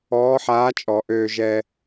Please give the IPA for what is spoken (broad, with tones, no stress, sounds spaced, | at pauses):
ɔː˧˥ ħ aː˧˥ t͡ʃʼ ɔ˨˩˦ ʔ øː˨ ʒ ɛ˨